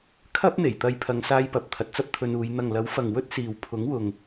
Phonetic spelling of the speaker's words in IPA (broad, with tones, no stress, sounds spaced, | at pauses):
kʰ ɐ˥ p̚ n̪ e˨˩ j t̪ ɐ˧ j pʰ ɐ˨˧ ŋ s aː˧ j p ɐ˨ p̚ t̪ʰ ɐ˨ t̚ t͡s ɐ˥ p̚ t̪ʰ ɵ˧ n uː˨˧ j n̪ ɐ˨ ŋ l ɐ˨˥ w f ɐ˨ ŋ w ɵ˥ t̚ s iː˨ w pʰ ʊ˨˥ ŋ w ʊ˨ ŋ